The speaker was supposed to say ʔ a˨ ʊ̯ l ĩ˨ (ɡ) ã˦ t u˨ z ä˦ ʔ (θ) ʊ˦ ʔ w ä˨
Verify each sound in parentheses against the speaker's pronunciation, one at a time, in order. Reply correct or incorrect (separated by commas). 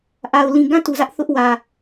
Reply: correct, correct